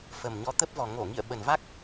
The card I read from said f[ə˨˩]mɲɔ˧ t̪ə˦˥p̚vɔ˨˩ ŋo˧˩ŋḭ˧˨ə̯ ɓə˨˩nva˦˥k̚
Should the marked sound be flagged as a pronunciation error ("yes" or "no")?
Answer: no